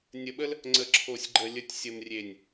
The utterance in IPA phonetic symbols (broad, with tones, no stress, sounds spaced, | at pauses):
nʲ ə˨ ɓ ə˦ l | ŋ͡ǀ ə˨ ǁʰ o˨ sʲ ɡ͡ǃ ə˨ lʲ ə˨ tʲ sʲ ə˨ m rʲ e˨ nʲ